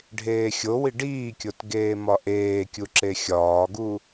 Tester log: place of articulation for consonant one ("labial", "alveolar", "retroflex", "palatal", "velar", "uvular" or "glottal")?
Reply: retroflex